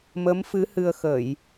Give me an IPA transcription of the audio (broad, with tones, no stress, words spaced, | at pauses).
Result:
mə˨˦mfɨ˨˦ hɨ˧ə̯xə˧˩˨j